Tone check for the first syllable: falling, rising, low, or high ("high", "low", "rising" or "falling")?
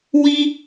high